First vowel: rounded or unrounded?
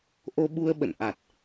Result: rounded